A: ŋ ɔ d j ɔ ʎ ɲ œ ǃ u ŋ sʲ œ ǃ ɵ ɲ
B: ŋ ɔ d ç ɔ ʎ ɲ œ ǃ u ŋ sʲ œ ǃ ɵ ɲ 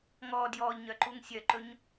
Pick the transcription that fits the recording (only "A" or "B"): A